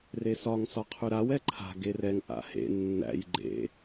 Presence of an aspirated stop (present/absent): present